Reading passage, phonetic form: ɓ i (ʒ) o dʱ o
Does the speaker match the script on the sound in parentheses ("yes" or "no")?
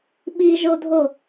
yes